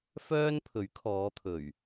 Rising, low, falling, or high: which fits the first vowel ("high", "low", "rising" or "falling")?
high